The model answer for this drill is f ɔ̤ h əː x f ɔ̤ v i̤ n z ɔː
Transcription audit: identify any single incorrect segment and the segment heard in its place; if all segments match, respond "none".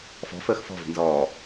h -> f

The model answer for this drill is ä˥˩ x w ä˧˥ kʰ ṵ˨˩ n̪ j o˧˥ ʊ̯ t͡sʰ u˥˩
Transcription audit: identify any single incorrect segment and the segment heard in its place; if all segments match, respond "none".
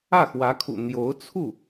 none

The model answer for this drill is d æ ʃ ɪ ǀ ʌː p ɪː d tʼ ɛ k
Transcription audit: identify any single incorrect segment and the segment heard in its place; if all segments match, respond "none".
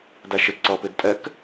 none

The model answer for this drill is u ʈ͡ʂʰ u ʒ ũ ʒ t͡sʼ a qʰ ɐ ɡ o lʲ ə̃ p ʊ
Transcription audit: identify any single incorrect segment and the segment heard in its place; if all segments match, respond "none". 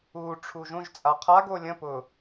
ɐ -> a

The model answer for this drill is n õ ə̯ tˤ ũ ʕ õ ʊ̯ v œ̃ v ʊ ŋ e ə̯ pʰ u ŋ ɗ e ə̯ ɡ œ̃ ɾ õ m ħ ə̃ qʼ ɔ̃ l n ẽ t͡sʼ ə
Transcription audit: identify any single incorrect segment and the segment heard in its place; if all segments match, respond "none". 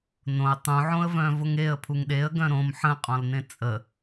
ʊ̯ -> ə̯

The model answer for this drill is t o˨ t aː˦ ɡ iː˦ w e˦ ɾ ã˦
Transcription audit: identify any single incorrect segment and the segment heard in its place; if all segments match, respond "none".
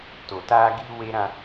none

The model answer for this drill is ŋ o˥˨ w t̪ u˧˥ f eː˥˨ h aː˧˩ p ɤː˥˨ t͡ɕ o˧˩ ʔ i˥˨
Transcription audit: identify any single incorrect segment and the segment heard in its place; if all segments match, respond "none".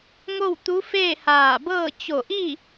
p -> b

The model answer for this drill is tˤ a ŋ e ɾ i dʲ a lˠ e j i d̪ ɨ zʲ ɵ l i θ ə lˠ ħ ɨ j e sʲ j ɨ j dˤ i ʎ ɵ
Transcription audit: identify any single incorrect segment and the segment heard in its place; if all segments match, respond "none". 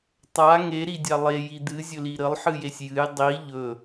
θ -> ɾ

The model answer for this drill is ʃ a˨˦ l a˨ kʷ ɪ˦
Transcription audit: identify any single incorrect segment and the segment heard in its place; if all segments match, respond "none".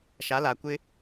none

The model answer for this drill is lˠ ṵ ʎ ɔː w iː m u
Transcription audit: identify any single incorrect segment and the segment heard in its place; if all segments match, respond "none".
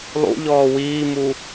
none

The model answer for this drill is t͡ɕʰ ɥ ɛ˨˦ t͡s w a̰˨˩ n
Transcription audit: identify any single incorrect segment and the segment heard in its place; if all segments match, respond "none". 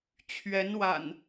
t͡s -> n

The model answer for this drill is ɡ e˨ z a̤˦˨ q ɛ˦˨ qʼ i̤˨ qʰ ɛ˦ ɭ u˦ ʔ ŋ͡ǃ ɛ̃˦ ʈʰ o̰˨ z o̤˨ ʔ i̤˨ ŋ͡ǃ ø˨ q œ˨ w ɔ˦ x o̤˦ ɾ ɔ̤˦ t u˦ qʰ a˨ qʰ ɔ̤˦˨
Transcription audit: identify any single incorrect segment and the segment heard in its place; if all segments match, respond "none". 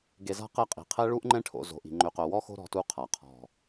none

